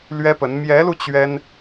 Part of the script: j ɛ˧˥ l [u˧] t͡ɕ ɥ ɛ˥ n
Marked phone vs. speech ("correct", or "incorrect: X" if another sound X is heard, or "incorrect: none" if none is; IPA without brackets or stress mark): correct